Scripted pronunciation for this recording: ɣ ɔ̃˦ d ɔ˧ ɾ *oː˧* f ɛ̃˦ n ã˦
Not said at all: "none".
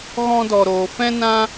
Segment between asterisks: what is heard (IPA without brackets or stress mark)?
oː˧